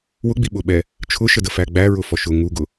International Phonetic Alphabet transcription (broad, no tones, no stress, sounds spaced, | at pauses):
w ʊ ɡ͡b i ɓ ʊ ɓ ɛ | t͡ʃʰ ʊ ʃ ə d ə f æ ɡ͡b æ ɹ ʊ f ɔ ʃ ʊ ŋ u ɡ ʊ